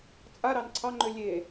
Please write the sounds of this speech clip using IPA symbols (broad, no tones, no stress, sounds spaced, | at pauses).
t͡sʼ a ɾ ɑ n ǀʰ ɑ ŋ͡ǃ ø lʲ e